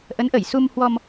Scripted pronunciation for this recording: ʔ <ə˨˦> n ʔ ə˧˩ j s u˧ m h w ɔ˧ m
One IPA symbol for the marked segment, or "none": ə˨˦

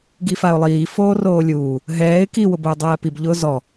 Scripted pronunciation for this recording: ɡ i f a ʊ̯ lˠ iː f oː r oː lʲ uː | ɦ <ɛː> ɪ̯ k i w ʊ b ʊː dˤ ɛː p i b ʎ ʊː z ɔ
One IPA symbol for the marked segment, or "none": ɛː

